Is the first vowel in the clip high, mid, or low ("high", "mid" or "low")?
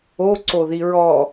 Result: mid